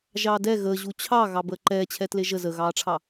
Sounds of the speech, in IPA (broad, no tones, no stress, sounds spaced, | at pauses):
ʒ ɑ d ɛ ɣ əː ʑ u t͡ɕʰ ɑ ɣ ɑ b əː ǃ ɛː t͡ɕʰ ɛ t l e ʒ ə z ə ɣ ɑː ʈ͡ʂʰ ɑ